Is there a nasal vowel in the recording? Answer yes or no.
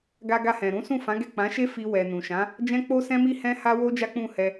yes